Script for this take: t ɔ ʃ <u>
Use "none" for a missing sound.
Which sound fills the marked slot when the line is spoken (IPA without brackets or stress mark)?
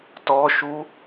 u